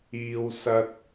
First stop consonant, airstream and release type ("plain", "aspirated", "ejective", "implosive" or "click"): plain